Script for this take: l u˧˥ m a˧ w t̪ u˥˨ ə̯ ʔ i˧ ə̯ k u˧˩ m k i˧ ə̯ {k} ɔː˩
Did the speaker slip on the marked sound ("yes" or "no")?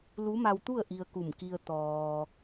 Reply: yes